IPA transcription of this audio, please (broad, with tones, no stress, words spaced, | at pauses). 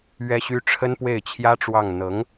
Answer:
ɥɛ˥ɕy˥ ʈ͡ʂʰə˥npwe˥˩ɪ̯t͡ɕʰjä˥ʈ͡ʂwɑ˥˩ŋ n̪ɤ˧˥ŋ